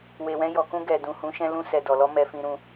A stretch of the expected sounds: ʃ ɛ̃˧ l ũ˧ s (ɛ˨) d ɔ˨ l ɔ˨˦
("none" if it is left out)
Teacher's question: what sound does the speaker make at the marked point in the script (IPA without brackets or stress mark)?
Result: ɛ˨